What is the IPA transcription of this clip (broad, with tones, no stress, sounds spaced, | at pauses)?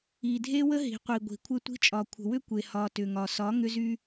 i˨ dʱ e˦ w ə˦ ɦ i̤˨ qʷ i˨ ɡʷ i̤˨ kʷʰ ɘ˦ tʷ i̤˦ t͡ʃʼ ɒ˨ kʷʰ ə̤˨ w ʏ˦ kʷ e˨ h ɒ˨ t ʏ˨ ŋ ɒ˨ s ɒ˨˦ ŋ ʏ˦ z y˦